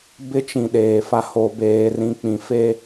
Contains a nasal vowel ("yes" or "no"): yes